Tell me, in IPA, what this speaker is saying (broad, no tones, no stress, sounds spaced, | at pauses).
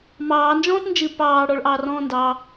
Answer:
m ɑː n d͡ʒ ɔ̃ː t n d͡ʒ ɨ p ɑː ɽ ɔ ɭ ʔ ɑː r ɔ̃ː n d ɑ